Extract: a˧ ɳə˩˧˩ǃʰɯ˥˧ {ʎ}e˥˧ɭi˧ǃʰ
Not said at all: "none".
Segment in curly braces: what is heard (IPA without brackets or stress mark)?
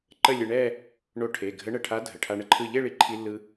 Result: ʎ